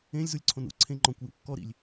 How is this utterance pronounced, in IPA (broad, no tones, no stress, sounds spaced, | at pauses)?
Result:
ẽ lʲ z u lʲ ǀʰ õ n ṵ ǀʰ ẽ ŋ͡ǃ ɔ̃ kʷ j ṵ kː ɔ ɾ ḭ lʲ